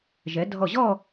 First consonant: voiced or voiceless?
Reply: voiced